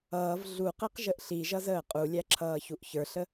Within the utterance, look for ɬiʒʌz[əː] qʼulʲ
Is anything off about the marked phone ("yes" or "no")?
no